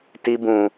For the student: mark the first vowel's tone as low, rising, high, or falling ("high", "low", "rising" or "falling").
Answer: high